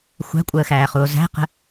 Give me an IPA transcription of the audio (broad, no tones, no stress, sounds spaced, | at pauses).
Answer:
xʷ æ̤ kʷʼ əː x æː χ u o̯ z æ̤ q ə̤